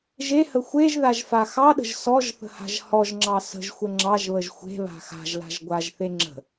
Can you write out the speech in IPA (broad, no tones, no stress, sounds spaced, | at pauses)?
ʒ e h ə xʷ e ʒ ð a ʒ f a x ɑ ɗ ə̤ ʒ s ɔ ʒ θ ə̤ h a̤ ʒ h ɔ ʒ ŋ͡ǁ ɑ s ə̤ ʒ xʷ ə ŋ͡ǁ ɑ ʒ β ə ʒ xʷ e̤ β a̤ x a̤ ʒ l a̤ ʒ ɡʷ a ʒ θ e ŋ͡ǁ ə̤